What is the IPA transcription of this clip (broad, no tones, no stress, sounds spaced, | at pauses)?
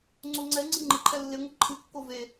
ŋ͡ǀ o ŋ͡ǀ ɛ ŋ͡ǀ ɨ ŋ͡ǃ ɪ ǃʰ ɛ lː ɪ ŋʷ ə ǃʰ ɨ kː o v e